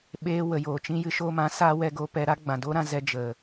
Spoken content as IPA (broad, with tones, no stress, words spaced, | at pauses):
ɓeː˧wə˨joː˨ t͡ʃĩ˧ jɨ˧ʃoː˧mã˨˦ saː˧ wɛ˧ɡoː˧pɛ˧ ɾa˦ɡ͡bã˨ doː˦ɾã˧zɛ˧ d͡ʒə˨